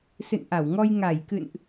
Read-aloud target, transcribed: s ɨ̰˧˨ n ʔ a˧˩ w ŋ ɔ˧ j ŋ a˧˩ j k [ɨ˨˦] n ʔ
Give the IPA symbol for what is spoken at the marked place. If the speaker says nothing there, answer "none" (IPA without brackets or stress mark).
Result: ɨ̰˧˨